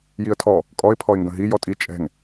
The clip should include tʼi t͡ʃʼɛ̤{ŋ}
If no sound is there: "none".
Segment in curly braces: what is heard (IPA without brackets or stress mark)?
ŋ